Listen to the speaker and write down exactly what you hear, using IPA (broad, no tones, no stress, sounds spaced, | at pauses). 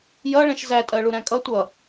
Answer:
j ʌ ɭ ɛ̃ ʃ z æ tʼ ɜ ɭ u ɾ æ̃ kʼ ʌ tʷ ʌ